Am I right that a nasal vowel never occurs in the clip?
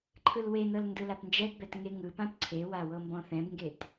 no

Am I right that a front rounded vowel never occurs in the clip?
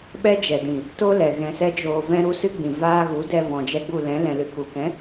yes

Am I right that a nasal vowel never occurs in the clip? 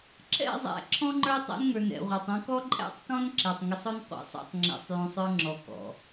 no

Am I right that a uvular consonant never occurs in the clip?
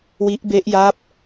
yes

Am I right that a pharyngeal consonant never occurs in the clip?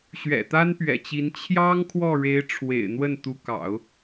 yes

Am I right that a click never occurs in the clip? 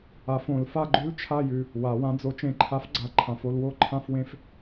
no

